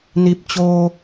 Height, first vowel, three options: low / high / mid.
high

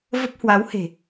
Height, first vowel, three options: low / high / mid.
mid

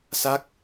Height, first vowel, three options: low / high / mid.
low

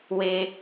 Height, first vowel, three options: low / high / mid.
mid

